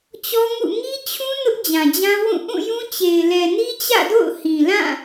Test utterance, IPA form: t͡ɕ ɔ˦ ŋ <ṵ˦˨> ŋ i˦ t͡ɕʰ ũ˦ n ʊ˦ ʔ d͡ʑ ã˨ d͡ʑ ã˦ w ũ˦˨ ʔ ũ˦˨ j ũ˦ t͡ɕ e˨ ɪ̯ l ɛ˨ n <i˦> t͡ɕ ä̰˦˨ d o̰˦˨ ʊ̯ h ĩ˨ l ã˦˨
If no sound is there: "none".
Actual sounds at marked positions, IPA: ṵ˦˨, i˦

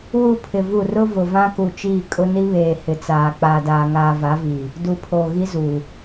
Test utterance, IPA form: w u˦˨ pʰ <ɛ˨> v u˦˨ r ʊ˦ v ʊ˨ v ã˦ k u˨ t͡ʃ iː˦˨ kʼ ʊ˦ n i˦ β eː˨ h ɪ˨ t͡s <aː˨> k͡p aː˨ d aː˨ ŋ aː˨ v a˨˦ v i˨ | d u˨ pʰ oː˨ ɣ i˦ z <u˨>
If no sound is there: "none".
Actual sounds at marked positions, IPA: ɪ˨, aː˨, u˨

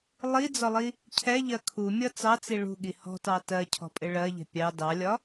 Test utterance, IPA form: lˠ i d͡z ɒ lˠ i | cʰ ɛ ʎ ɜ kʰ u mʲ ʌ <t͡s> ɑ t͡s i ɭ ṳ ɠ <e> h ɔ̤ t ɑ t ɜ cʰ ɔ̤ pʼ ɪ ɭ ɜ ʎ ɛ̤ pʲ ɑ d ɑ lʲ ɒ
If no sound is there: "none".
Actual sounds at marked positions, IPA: t͡s, i

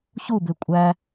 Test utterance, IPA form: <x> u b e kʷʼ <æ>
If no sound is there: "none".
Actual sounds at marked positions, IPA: ç, æ

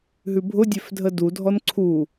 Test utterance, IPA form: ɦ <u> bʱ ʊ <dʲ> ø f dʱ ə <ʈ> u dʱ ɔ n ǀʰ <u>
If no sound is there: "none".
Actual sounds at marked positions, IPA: ʉ, dʲ, d, u

